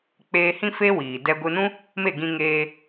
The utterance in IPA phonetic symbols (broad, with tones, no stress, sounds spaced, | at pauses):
k͡p eː˧ h ĩ˦ f e˦ w iː˨ d ɛ˧ ɡʷ ɨ˧ n ũ˦ | m e˦˨ ɡ ĩ˧ ŋ eː˧